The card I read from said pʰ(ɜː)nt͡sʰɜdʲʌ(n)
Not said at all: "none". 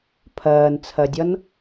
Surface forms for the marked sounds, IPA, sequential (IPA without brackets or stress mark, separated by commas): ɜː, n